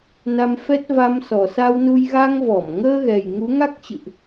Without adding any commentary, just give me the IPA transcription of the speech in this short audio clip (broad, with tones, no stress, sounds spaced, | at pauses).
n a˧ m f ɛ˦˥ t̚ v a˧ m s ɔ˨˩ s a˧ w n u˧ j ɣ a˧ ŋ v ɔ˧˩ m ŋ əː˧ ɣ ɛ˨˩ j ŋ u˨˦ ŋ a˦˥ k̚ t͡ɕ ɨ̰˧˨ ʔ